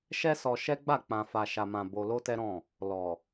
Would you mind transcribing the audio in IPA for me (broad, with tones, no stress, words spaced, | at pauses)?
ʃɛ˦sɔ˧ʃɛ˦ɡ͡ba˦˨ k͡pã˨fa˨ʃa˨mã˨ bo˧lo˦tɛ˦ɾɔ̃˦˨ | lɔ˨